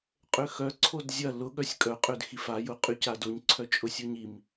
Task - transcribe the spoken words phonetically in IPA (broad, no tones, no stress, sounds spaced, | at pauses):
qʼ ø x œ ǀʰ o d zʲ ɐ l ʊ ɠ œ sʲ kʼ œ qʼ ø d x i f a j ʊ qʼ y c a d o ɲ ǀʰ œ t͡ʃʼ ʊ sʲ o ɲ i m